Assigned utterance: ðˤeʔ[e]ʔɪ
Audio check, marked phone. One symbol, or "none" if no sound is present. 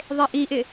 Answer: i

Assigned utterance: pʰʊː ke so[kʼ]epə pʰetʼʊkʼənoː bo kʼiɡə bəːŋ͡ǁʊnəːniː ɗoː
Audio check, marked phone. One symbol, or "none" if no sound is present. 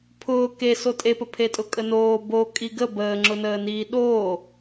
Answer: tʼ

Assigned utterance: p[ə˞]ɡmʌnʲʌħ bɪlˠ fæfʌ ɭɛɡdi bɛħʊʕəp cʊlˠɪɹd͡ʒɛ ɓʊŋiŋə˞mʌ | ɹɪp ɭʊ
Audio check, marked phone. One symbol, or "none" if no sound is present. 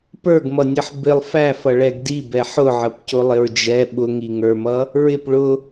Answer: ə˞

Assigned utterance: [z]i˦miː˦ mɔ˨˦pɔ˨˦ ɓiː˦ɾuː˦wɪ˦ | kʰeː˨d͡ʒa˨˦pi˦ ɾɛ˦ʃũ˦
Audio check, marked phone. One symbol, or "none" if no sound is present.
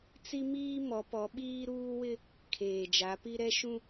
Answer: t͡s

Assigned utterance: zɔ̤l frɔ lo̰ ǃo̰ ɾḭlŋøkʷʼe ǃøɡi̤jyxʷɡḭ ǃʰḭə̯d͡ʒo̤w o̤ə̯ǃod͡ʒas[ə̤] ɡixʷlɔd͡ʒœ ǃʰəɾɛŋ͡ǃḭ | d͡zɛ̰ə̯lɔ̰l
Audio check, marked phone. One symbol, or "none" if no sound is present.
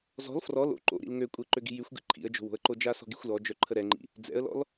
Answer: ɔ̤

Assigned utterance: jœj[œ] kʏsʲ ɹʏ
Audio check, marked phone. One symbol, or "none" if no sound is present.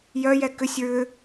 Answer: ɛ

